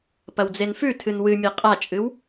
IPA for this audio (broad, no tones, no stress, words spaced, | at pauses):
pɐwd͡zenfʉ tʰɨnwɨmʲe qʼat͡ʃʼɨw